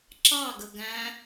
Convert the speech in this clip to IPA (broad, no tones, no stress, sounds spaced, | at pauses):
ǁ ɑ ɡ ə ɡ æ̃